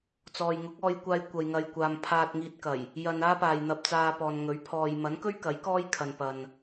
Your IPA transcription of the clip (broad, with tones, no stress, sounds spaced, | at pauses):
t͡s ɔː˨ j ŋ ʊ˨˥ k̚ ɔː˧ j kʷ aː˧ j kʷ ɐ˨ j ŋ ɐ˨ j kʷ aː˨ m pʰ aː˧ t̚ ŋ iː˧ t̚ k ɐ˨˩ j | j ɐ˧ n aː˥ p aː˨ j n̪ ɐ˧ p̚ t͡s aː˧ p ɔː˨ n ŋ ɵ˨˥ ɥ pʰ ɔː˨ j m ɐ˨˥ n k ɵ˥ ɥ k ɐ˨˥ j k ɔː˥ j kʰ ɐ˨ n p ɐ˨ n